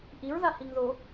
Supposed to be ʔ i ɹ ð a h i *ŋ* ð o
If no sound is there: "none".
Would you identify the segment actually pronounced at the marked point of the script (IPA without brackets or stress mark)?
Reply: ŋ